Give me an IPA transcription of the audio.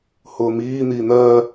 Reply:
h ʊː m iː n̪ iː n̪ ɜ

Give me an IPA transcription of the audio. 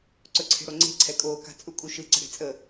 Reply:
ǀ ɵ ǀʰ e̤ ɽ o ŋ͡ǀ e̤ ǀʰ ɛ kʼ oː k a̤ t͡sʼ u kʼ u ʃ ɯ ǀ ə̤ ɽ e̤ t͡sʼ ə

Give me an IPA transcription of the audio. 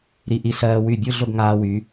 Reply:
ɾ i˧ ʔ i˧ s ɜː˧ w y˧˩ bʲ ɯ˥˧ ɮ ʊ˥˧ ɡ ŋ aː˧ w y˩˧

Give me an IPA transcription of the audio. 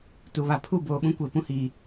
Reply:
t u˨ β a˨ pʰ u˦˨ b oː˨ ɓ ũ˦ kʷ e˨ p ũ˦ h iː˨

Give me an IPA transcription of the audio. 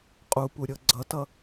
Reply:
qʼ u p u ɾʲ ɤ ɡ͡ǀ ʌ t ʌ

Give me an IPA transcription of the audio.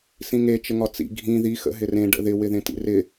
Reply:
s ĩ ŋ e t͡ʃ ə ŋ ɒ t͡s ḭ ɡʱ ĩ ð i x ə̰ ɦ ɪ r ẽ ɖ ə̰ ð ɪ w ɪ ð ẽ t ḭ r ɪ

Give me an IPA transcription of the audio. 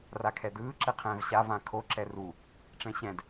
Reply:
r a kʰ ɛ d ɯː ǁ ɛ qʰ ɛ̃ː v ɕ a v ã kʰ o ǁ ɛ r u | ʈ͡ʂ ɛ̃ ɕ ɛ̃ d

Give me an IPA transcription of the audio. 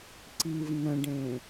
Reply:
ǀ i v n ə̃ ɖ ẽ

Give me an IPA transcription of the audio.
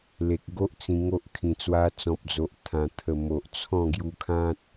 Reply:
l e˨ k̚ ɡ o˦ ʔ t͡s ĩ˧ ŋ o˦ ʔ kʰ ĩ˨˩ t͡s w a˧ t͡s ɔ̃˨ p̚ d͡z o˨ ʔ t̪ʰ ã˨˩ t̪ʰ ə˨˩ m o˨ ʔ t͡sʰ ɔ̃˥˧ ɡ j u˧ kʰ ã˦ t̚

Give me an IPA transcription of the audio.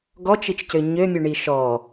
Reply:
ɡ ɔ t͡ʃ i t͡ʃ c ø ɲ ø mʲ u ɳ i ʃ ɔ

